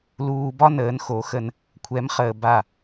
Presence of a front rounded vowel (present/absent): absent